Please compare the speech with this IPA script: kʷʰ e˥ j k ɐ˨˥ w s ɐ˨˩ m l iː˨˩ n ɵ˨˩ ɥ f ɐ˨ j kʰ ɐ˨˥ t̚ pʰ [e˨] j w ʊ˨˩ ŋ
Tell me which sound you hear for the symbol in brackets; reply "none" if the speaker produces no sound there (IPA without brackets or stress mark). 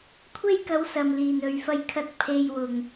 e˨